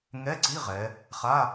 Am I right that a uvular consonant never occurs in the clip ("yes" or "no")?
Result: no